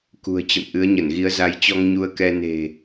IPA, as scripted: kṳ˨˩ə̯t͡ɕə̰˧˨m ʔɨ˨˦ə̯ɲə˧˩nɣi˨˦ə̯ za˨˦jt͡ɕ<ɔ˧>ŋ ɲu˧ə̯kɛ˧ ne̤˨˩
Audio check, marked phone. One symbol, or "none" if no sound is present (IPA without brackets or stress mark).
ɔ˧